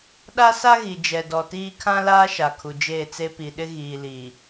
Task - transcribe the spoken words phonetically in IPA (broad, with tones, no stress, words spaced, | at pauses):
ɗa˦sa˦ɣi˨ d͡ʒɛ˨dɔ˨tiː˦ kʰã˦laː˦ ʃa˨kʰu˨d͡ʒeː˦˨t͡se˦ pi˨ ɗɪ˦ɣiː˨liː˨